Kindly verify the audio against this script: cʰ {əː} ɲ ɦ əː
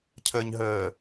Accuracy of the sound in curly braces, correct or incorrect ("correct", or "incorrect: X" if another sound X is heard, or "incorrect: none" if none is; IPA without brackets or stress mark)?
correct